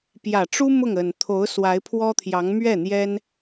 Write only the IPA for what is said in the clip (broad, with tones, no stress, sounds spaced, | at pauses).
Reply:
p j ä˨˩ ʈ͡ʂ u˥ m ʊ˥˩ ŋ ə˨˩ n t̪ʰ o˧˥ ʊ̯ s w a˧˥ ɪ̯ pʰ w ɔ˥ t̪ʰ j ɑ˧˥ ŋ m ɥ ɛ˥˩ n̪ j ɛ˥ n